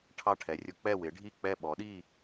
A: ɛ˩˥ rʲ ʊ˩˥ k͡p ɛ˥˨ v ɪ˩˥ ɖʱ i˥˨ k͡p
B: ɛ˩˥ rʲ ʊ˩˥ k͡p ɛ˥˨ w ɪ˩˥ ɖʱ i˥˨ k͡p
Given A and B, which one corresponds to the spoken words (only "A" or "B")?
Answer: B